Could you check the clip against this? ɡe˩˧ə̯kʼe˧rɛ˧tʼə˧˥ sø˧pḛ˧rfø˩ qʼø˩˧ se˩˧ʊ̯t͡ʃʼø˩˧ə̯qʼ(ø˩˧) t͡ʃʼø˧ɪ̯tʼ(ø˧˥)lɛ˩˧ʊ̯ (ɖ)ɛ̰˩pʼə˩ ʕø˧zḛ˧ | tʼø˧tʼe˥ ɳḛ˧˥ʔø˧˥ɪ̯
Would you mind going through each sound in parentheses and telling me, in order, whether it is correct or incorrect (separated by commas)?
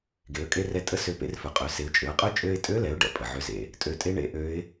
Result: incorrect, correct, correct